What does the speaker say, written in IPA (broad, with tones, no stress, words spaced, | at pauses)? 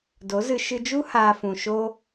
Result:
do˨˦zɨ˧ ʃɨ˧d͡ʒu˦ haː˧fũ˨ ʃo˦